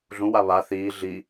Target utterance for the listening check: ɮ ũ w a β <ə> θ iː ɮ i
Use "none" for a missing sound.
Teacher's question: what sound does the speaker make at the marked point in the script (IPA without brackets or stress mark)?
a